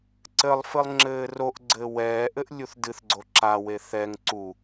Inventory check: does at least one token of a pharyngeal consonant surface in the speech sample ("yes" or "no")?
no